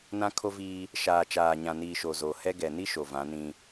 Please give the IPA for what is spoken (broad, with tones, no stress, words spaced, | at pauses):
nã˦kʰo˦viː˦ | ʃaː˨t͡ʃaː˨ɲã˨niː˨ ʃo˨zo˨hɛ˦ɡɛ˨ ni˦ ʃo˨vã˨˦ nĩ˦